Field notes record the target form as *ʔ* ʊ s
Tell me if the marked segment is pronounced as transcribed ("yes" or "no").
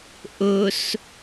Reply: yes